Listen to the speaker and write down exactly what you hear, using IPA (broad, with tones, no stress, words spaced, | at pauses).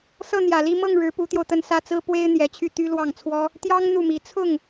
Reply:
sɤ˥˩n̪jä˨˩li˥˧ mɤ˥˩ŋɻɻ̩˧˥ pu˧˥t̪jo˧ʊ̯ t̪ə˥˩nsä˥t͡sɹ̩˥ pwe˥ɪ̯n̪jɛ˧˥t͡ɕʰy˥˩t̪y˥ lwɑ˥˩ŋt͡sʰwɔ˥ | t̪jɑ˥ŋ n̪u˥˩mi˧˥ t͡sʰʊ˥˩ŋ